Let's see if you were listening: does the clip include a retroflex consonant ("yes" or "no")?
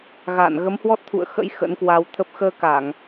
no